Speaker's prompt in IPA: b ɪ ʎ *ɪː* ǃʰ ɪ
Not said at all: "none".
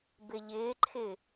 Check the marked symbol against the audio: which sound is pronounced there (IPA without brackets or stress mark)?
ɪː